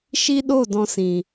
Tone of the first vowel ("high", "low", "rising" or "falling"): high